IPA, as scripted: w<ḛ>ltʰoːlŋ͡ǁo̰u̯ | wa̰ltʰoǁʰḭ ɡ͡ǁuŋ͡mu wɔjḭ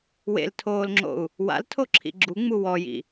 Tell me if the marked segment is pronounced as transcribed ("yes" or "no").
yes